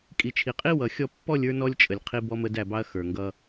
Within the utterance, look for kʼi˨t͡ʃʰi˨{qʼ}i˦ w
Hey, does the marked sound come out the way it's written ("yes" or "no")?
yes